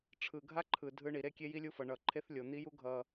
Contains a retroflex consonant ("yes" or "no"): yes